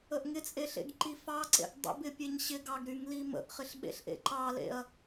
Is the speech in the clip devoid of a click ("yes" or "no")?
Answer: no